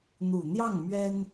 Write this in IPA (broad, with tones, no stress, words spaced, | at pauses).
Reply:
n̪u˨˩n̪jɑ˥˩ŋ mɥɛ˥n